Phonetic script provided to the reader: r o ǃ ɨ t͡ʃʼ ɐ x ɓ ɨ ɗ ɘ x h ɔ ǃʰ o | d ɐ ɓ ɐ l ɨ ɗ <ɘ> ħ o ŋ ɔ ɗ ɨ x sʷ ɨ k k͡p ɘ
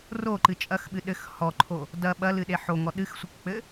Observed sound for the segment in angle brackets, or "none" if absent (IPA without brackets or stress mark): e